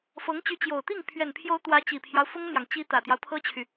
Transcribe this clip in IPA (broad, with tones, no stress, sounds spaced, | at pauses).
f ɤ˧˥ ŋ t͡ɕ y˧˥ t͡ɕ j o˨˩ ʊ̯ t̪ i˥˩ ŋ pʰ ɥ ɛ˨˩ n pʰ j o˧˥ ʊ̯ t̪ w ä˧˥ t͡ɕ i˨˩ pʰ j ɑ˦ ʊ̯ f ʊ˥ ŋ ə˨ n j ɑ˩ ŋ t͡ɕ i˧˥ t̪ ä˨˩ t̪ j ɑ˦ ʊ̯ pʰ ɤ˥ t͡ɕʰ y˨